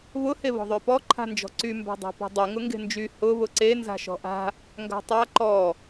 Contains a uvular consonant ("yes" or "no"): no